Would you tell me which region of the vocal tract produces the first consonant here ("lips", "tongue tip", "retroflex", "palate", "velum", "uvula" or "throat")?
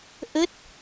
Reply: throat